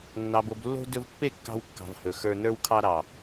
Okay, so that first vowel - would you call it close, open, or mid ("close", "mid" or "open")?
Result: open